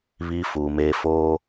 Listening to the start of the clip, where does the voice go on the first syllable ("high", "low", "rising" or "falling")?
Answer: high